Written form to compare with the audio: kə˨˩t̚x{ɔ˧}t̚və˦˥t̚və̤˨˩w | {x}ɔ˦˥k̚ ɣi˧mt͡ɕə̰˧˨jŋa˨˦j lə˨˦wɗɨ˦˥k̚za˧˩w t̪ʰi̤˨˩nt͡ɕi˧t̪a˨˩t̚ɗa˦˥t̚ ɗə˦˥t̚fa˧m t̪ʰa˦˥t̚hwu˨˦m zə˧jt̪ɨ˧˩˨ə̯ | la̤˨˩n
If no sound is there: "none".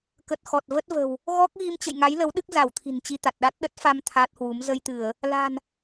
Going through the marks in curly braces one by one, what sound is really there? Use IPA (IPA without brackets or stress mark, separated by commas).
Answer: ɔ˨˩, ɣ